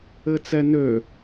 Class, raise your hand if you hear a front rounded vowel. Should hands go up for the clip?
yes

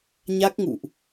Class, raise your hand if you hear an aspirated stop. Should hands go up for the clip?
no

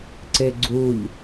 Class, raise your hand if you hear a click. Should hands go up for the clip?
yes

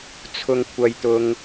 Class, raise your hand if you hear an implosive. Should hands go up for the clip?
no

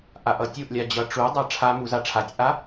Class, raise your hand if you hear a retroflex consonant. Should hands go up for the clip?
yes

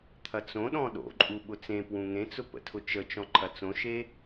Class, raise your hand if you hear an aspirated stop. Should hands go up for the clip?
yes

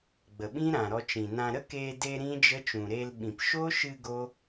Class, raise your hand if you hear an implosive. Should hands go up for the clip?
yes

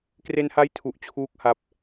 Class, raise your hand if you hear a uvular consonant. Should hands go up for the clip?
no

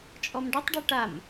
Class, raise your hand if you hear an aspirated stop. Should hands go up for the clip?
no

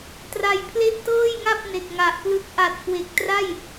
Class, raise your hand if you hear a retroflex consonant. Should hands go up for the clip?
no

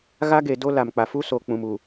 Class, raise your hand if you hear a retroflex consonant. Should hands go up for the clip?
no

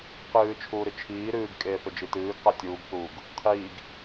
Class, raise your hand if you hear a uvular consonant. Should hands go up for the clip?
yes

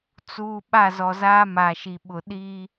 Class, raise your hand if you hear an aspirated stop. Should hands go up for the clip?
no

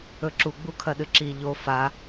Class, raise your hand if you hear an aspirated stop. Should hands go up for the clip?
yes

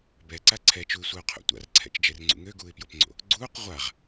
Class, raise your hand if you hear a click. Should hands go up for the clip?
yes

